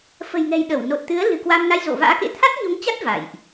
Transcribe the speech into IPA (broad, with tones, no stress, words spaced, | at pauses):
fə̤˨˩jŋɛ̤˨˩jɗə˧˩w no˨˩t̚t̪ɨ˨˦ə̯ lɨ̤˨˩kwaː˧mna˧j zo̰˧˨va̰ː˧˥kḛ˧˥ t̪ʰa˦˥t̚ɲo˨˦ŋt͡ɕa˦˥t̚ va̰˧˨jʔ